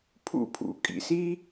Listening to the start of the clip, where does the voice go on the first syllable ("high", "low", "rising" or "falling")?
falling